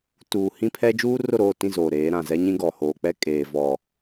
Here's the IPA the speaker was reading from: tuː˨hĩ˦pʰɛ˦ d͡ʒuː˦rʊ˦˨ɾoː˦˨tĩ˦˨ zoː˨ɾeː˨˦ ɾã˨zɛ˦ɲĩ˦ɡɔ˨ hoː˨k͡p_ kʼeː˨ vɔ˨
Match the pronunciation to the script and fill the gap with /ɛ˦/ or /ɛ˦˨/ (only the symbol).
ɛ˦